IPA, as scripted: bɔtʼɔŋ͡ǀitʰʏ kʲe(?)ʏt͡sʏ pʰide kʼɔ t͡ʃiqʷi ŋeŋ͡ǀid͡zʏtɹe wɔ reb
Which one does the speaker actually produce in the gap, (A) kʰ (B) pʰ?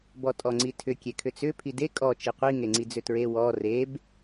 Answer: A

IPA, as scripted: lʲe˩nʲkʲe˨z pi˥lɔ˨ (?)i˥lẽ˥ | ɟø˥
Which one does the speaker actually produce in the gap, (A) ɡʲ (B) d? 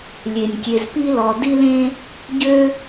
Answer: B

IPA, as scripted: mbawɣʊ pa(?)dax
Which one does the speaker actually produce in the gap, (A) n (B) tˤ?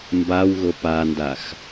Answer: A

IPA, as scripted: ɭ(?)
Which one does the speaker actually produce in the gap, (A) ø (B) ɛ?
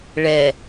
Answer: B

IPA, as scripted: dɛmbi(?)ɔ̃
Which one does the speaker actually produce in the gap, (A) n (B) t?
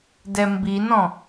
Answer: A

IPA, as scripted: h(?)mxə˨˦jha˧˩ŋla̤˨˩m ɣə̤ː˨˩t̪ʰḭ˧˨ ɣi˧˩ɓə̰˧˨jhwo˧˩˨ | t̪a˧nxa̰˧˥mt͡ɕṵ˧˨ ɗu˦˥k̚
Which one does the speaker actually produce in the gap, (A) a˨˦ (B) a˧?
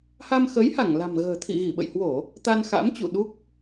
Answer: B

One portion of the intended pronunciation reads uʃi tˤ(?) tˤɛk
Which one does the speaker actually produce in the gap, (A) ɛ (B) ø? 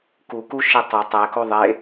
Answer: B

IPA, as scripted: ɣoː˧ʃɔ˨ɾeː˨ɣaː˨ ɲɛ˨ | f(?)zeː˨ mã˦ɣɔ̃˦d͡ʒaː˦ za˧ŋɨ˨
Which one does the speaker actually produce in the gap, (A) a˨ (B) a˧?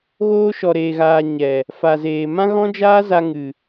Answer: A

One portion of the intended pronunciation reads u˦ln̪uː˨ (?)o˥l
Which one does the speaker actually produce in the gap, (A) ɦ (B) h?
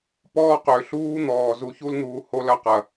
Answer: B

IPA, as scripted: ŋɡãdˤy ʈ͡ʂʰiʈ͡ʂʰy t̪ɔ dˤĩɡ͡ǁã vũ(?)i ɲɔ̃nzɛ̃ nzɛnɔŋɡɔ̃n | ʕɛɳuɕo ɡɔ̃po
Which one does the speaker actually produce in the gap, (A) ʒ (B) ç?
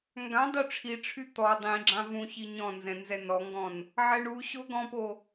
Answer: B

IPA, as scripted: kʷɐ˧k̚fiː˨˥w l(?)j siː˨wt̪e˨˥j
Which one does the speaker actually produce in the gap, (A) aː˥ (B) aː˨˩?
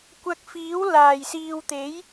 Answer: B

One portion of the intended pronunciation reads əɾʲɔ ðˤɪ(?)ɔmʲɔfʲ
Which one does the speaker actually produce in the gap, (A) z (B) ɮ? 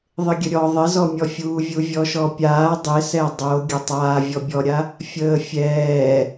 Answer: A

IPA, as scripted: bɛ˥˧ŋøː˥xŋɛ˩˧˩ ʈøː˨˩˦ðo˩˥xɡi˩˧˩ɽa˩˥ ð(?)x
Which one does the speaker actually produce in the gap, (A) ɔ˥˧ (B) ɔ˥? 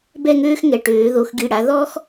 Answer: B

